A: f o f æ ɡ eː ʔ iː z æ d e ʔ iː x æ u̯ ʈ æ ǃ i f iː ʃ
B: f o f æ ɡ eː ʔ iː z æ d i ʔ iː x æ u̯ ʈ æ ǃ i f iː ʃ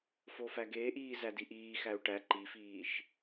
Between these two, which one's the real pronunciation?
B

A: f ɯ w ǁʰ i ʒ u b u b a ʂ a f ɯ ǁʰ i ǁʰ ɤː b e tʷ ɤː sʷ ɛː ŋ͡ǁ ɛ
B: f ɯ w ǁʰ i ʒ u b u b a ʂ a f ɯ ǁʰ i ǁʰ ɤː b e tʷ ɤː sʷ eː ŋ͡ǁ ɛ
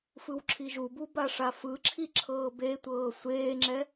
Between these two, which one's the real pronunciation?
B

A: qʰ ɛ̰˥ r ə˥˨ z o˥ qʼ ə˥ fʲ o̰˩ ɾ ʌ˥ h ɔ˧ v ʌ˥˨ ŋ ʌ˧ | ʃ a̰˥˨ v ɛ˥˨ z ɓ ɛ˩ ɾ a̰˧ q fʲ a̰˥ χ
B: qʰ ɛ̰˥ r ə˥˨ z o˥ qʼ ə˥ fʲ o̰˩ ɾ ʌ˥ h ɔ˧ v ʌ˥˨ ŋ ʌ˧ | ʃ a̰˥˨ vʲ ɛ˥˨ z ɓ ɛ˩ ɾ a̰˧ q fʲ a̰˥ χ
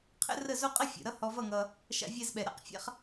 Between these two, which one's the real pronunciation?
B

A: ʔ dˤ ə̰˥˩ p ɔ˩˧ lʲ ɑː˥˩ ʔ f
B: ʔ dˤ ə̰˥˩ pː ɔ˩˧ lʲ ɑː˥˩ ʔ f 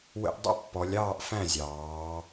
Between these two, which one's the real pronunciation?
B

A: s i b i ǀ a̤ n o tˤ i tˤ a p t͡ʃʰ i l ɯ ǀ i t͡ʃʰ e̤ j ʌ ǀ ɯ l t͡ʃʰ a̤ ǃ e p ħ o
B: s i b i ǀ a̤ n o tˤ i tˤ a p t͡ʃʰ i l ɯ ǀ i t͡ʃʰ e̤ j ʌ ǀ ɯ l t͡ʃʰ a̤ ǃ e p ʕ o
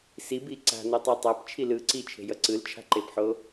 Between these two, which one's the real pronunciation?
A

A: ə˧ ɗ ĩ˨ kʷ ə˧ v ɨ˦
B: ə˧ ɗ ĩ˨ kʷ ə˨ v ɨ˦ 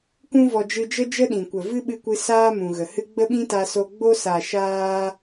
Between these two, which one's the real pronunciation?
B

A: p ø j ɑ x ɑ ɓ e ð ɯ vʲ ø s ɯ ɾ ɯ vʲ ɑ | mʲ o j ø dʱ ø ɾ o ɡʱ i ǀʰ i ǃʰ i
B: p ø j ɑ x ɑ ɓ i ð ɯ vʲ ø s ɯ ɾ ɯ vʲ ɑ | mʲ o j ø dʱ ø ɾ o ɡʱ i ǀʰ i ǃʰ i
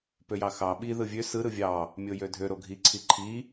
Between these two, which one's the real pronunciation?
B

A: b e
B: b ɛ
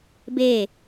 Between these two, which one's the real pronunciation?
A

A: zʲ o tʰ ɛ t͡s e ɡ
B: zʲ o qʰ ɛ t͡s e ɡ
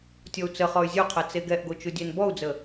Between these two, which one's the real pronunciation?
B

